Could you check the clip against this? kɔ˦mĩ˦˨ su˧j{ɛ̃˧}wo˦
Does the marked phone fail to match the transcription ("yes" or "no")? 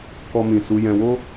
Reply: no